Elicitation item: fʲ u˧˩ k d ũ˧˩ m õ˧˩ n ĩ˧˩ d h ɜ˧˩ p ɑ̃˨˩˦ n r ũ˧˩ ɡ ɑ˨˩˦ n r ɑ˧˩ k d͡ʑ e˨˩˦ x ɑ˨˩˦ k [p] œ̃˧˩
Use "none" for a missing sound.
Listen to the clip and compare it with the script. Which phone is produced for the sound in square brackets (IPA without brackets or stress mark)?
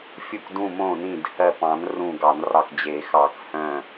h